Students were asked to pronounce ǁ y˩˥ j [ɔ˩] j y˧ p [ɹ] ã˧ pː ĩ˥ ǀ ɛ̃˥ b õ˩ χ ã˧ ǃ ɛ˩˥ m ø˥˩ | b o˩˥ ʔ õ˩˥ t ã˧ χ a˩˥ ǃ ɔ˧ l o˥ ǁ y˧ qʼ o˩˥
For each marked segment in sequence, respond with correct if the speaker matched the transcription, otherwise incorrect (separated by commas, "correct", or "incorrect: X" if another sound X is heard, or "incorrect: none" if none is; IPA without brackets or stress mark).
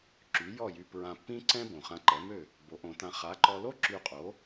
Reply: incorrect: ɔ˥˩, correct